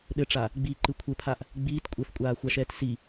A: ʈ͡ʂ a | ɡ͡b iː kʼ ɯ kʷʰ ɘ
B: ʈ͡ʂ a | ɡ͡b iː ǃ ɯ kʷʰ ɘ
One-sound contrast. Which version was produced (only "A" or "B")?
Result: B